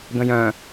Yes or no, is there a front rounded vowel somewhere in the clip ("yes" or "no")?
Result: yes